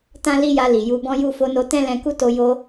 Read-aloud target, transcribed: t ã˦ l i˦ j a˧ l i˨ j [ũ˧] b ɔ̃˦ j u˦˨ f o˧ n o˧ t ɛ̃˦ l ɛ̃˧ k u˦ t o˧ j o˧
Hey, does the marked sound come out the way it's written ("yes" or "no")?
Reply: no